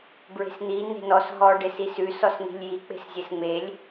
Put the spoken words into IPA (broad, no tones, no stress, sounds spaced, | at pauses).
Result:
b ɹ e̤ s n̪ i n e̤ n ɔ s ɦ ɔ ɖ e s i s ʉ s ɔ s n̪ i̤ lʲ j i k͡p e̤ s zʲ e s ŋ͡m e lʲ